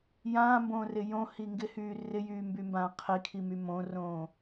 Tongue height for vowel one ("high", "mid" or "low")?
low